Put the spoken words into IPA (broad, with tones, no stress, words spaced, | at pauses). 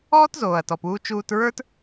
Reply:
ɔː˥tzoː˩ɐ̯tɔ˩puː˧ t͡ʃuː˧tɹə˞˥t